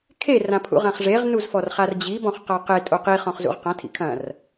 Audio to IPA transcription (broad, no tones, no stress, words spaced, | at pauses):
kʰe rãpʰṵʁãχʐeʁ nuzfɔrχard͡ʑi bɔ̃χqaqe tʼoqi χɔ̃χzṵʁqã tʰḭkʰɐ̃r